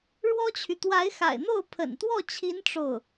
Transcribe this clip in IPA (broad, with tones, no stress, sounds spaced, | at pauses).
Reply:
ɻ w ɔ˥ t͡ɕʰ y˨ t̪ w a˧˥ ɪ̯ x a̰˨˩ ɪ̯ n̪ o˥˩ ʊ̯ pʰ ə̰˨˩ n t̪ w ɔ˥˩ t͡ɕʰ i˧˥ n ʈ͡ʂ o˥˩ ʊ̯